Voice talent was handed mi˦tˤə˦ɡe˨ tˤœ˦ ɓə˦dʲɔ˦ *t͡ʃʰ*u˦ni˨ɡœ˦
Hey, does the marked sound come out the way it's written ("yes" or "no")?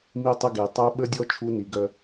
yes